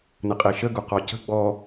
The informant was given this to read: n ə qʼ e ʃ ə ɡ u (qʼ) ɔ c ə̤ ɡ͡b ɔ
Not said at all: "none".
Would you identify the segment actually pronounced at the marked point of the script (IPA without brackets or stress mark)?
q